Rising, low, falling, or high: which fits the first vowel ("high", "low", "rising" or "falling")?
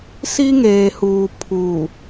high